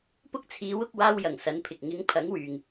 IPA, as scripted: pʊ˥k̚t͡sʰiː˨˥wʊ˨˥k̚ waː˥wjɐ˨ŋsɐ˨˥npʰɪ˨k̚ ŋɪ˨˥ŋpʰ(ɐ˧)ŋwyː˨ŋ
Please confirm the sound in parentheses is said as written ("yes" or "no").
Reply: no